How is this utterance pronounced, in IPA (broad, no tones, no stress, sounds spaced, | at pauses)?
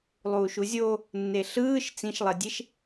lˠ uː ʃ u zʲ o | nː e ɬ ɯː ʃ t͡s ĩ ʃ lˠ e dʲ e ʃ